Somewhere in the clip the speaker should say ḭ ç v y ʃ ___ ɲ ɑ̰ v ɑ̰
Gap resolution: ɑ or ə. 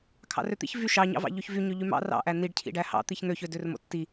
ɑ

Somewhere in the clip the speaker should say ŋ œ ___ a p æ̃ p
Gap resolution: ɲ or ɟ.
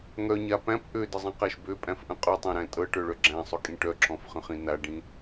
ɲ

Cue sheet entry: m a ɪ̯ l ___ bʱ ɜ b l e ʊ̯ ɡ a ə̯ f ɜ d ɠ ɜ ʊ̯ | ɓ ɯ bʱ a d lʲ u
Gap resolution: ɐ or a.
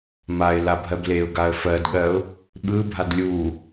a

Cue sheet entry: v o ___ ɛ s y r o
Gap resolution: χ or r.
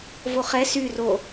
χ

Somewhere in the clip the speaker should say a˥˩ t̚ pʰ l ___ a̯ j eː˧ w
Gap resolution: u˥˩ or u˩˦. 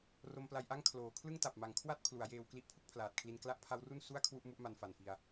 u˩˦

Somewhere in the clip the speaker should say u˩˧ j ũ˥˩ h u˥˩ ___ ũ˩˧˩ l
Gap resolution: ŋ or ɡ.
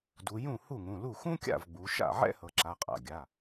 ŋ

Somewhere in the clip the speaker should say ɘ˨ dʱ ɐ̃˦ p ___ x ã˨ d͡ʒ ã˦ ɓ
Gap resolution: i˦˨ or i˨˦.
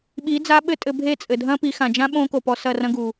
i˨˦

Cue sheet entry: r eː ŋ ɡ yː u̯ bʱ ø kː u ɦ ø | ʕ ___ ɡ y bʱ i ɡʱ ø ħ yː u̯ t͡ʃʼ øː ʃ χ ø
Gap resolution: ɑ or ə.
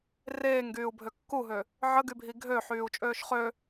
ə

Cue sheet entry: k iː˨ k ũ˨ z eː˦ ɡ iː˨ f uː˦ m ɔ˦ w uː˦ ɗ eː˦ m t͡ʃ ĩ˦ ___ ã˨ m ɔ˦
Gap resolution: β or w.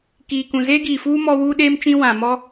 w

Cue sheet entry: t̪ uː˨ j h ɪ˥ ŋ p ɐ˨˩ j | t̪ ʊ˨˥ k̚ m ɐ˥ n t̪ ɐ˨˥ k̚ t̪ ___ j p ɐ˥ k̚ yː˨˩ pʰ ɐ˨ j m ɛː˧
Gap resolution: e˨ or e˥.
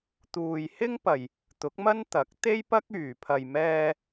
e˥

